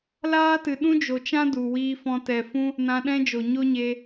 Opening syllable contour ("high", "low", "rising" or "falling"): high